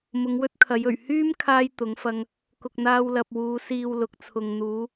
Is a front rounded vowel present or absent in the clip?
present